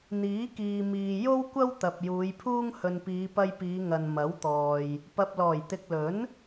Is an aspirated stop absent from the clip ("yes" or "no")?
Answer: no